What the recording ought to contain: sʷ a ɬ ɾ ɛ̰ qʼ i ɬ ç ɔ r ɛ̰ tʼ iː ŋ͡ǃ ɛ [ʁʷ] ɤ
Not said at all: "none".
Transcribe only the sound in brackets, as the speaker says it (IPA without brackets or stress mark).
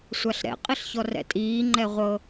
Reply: ʁʷ